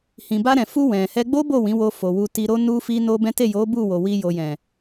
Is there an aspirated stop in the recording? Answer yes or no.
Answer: no